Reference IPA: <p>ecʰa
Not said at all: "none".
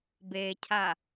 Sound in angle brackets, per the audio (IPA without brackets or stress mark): b